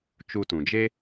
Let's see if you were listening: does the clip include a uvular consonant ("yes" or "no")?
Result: no